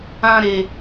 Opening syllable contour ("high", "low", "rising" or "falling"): high